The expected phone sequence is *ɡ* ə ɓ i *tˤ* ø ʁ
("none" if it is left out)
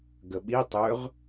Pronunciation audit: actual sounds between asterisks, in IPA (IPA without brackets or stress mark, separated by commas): ɡ, tˤ